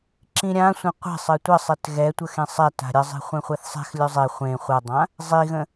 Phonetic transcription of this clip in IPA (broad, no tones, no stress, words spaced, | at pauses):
ǁĩɾʲã sʷẽqʷe̤sˤɘ tʷəsˤet ɣɛtʷə xẽsˤɛ ta̤ɾʲə zˤe̤χʷɛ̃χʷɛθsˤɛ̤x lʲɵzˤe χʷẽ χʷədˤã | zˤiɣə̃